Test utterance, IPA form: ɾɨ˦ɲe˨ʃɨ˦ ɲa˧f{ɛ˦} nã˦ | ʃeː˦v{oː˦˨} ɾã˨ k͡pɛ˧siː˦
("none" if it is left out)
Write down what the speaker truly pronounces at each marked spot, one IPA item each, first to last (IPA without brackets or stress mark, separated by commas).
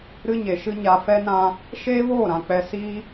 ɛ˦, oː˦˨